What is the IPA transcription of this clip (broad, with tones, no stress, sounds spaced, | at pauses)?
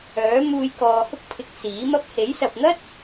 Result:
œː˨˥ m uː˨ j k ɔː˨ h ʊ˥ k̚ pʰ ɪ˨ k̚ s iː˨˥ m ɐ˧ p̚ h e˨˥ j s ɐ˨ p̚ n̪ ɐ˥ t̚